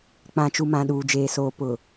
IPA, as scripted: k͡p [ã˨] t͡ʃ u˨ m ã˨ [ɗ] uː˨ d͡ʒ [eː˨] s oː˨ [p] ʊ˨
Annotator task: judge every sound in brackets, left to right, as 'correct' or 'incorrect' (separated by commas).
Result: correct, correct, correct, correct